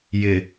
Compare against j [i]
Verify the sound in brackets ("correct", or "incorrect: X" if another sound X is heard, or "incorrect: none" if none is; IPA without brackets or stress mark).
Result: incorrect: ɪ